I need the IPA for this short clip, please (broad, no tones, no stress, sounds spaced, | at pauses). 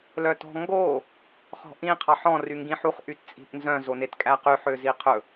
l œ t ɔ̤ ŋ ɡ oː | χ ɔ̤ ʔ ĩ qʰ ɑ ħ ɔ̃ r y ŋ ɡ ĩ ħ u χ ʔ y t t͡sʼ i̤ ʔ n z œ̃ z o n e t kʼ æ q y ħ ø z i qʰ ɵ